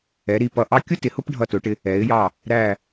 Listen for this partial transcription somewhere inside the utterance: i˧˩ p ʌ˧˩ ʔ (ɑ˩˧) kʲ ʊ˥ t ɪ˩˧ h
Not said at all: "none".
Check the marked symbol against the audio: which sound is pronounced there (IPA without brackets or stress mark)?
ɑ˥